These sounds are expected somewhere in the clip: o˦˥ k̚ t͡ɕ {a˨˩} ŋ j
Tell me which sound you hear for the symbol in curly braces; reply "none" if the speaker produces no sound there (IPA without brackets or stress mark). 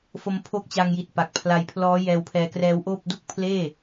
a˧